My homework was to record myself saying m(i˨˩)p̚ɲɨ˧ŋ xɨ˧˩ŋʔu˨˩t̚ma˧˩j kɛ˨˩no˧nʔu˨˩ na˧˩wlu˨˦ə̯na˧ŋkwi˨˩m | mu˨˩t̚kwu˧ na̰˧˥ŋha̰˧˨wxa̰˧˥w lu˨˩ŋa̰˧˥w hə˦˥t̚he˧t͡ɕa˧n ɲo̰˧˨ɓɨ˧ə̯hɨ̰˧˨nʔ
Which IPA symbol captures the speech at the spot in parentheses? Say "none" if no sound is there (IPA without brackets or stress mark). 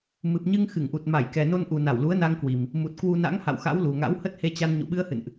ɨ˨˩